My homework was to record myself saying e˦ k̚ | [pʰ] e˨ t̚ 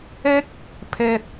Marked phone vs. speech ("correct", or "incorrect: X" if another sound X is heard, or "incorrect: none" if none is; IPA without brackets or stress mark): correct